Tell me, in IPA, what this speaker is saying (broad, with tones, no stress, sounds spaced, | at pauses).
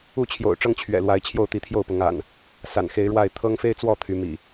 u˥˨ t͡ɕʰ j o̰˨˩ ʊ̯ ʈ͡ʂ ɤ˦ ŋ t͡ɕʰ ɥ ɛ̰˨˩ l w a˨˦ ɪ̯ t͡ɕʰ j o˥˨ ʊ̯ t̪ i˨˦ t̪ʰ j o˥˨ ʊ̯ p ʊ˨˦ ŋ a̰˨˩ n | s a̰˨˩ n x e˨˦ ɪ̯ ɻ w a˥˨ ɪ̯ t̪ʰ ɤ˦ ŋ f e˦ ɪ̯ t͡s w ɔ˥˨ t̪ʰ y˨˦ m ḭ˨˩